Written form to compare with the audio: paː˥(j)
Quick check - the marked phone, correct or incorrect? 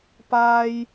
correct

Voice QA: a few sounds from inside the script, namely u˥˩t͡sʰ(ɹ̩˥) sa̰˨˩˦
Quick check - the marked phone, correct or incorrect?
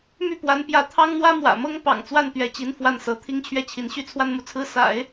correct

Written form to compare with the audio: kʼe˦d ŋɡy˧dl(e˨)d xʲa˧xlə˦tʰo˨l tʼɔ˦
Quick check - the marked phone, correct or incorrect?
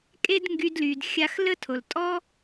incorrect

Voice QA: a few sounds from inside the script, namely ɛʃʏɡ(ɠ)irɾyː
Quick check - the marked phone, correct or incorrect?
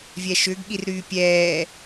correct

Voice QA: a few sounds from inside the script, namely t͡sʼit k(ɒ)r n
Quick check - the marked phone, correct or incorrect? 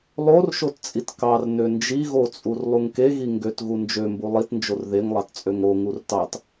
incorrect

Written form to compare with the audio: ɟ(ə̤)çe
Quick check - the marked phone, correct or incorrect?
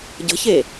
correct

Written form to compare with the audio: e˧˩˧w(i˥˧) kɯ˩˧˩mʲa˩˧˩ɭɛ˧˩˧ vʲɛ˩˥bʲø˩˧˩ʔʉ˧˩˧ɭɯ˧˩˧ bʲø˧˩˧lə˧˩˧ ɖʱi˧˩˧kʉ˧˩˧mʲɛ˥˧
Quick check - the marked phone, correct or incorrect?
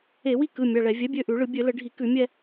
correct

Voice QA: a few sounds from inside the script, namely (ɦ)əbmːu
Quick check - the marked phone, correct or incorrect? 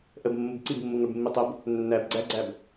incorrect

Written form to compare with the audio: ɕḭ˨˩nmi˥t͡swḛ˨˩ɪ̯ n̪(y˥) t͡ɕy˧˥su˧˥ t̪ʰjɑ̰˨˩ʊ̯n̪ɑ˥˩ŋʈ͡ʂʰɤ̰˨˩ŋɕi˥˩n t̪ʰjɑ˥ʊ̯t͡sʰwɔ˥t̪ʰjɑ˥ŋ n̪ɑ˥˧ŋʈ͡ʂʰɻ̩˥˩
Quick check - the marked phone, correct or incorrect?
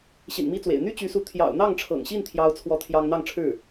correct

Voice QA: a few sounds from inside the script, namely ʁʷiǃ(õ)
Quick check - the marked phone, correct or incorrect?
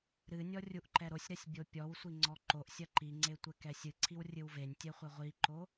incorrect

